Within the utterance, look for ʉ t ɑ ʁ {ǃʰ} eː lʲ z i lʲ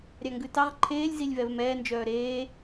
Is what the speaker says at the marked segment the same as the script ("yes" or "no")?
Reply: yes